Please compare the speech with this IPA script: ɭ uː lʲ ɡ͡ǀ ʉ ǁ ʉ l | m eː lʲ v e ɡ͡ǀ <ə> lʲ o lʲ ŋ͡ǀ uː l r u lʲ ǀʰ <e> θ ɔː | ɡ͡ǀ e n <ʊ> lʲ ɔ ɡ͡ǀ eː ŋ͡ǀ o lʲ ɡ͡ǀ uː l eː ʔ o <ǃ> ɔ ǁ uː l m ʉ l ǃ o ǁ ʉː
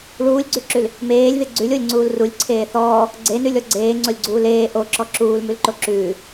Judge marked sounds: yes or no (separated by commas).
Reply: no, no, no, no